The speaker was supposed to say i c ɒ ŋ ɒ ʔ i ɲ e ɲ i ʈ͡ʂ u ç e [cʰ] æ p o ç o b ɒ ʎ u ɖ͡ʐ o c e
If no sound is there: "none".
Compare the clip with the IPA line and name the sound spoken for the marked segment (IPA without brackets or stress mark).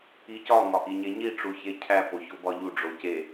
cʰ